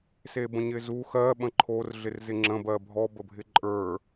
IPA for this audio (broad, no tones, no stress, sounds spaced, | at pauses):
s e b ə̃ ɲ ɪ z u x ɜ ɓ ə̃ ǃʰ o r ɮ ɪ r z ɪ ŋ͡ǁ ə̃ b ɜ bʱ ɔ b ə bʱ ɪ ǃʼ ə˞